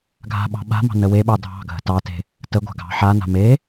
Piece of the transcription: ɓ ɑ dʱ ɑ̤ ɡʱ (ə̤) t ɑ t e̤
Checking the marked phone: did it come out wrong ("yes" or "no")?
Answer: no